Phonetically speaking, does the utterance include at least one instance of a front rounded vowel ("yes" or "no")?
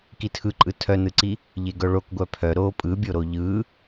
yes